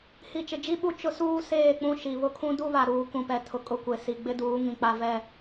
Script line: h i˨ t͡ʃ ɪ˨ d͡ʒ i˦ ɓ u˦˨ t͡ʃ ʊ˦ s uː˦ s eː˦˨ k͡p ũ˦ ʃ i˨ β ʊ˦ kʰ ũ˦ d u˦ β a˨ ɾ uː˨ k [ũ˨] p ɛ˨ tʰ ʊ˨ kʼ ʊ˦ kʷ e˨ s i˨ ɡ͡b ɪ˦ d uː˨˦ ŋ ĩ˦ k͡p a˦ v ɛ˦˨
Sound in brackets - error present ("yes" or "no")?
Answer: no